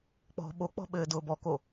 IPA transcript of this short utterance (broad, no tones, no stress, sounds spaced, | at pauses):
k͡p ɔ̤ ɓ o k͡p ɔ̤ ɓ ɘː d ʊː b ɔ k o